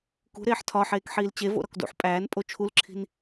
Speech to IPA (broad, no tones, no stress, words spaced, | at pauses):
kṳɾeːħ tʰɒħeːkħiːl t͡ɕevo̰ɾɒk dṵħ pʼæːnpʼo t͡ʃʰulǁʰi̤n